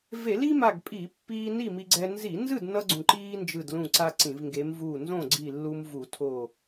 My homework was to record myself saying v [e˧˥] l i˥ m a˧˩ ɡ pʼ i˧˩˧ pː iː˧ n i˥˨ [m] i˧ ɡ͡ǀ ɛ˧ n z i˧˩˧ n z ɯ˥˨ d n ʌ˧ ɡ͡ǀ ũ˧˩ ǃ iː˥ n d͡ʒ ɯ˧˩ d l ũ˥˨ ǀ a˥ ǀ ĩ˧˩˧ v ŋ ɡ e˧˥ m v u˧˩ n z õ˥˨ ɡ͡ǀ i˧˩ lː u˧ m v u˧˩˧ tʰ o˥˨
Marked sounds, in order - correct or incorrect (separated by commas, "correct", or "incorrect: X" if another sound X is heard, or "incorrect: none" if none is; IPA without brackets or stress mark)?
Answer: incorrect: e˧˩˧, correct